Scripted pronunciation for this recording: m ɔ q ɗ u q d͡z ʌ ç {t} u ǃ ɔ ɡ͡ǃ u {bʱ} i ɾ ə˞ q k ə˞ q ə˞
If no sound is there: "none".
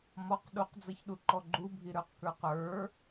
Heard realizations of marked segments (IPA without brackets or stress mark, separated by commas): ɗ, bʱ